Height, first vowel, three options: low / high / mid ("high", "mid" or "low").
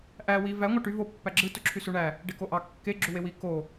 low